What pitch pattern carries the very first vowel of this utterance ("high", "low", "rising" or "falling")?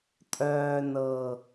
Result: low